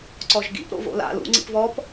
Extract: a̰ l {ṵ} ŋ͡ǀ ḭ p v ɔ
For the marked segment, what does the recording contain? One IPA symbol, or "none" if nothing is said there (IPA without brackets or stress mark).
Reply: ṵ